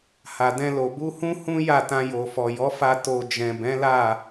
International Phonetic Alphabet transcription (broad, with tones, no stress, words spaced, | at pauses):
ha˨dɛ̃˧lo˨ bu˧hũ˦ hũ˦ ja˦˨tã˧jo˨fɔ˨ jɔ˨˦fa˧ to˨ d͡ʒɛ̃˨bɛ̃˨˦la˦˨